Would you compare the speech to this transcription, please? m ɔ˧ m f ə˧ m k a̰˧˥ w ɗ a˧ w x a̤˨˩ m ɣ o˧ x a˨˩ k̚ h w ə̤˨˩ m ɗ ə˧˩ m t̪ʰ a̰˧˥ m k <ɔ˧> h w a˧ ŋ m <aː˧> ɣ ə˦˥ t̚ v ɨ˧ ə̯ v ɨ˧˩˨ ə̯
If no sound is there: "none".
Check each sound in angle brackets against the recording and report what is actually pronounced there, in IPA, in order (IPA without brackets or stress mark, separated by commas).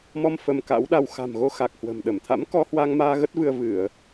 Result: ɔ˧, aː˧